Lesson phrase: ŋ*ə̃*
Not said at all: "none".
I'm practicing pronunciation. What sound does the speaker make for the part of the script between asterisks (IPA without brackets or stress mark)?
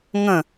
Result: ə̃